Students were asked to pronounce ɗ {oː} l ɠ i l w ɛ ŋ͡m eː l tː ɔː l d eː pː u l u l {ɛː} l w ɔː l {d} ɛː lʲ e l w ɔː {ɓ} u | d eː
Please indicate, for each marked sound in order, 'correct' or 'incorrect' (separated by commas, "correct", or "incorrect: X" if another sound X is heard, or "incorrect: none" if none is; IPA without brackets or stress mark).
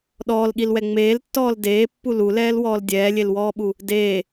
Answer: incorrect: ɔː, correct, incorrect: dʲ, correct